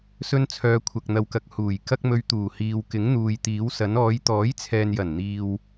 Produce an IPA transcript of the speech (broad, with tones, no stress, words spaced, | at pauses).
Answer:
sɵ˥nt͡sʰœː˧ kʷʰɐ˧k̚n̪ɐ˧wkɐ˧k̚ huː˨˩jkɐ˥k̚ mɵ˧ɥt̪uː˨˩hiː˨wkɪ˨˥ŋ n̪uː˨jt̪iː˨˥wsɐ˨˥n ɔː˨˧jt̪ɔː˨˥jt͡sʰɛː˨njɐ˨˩n n̪iː˧w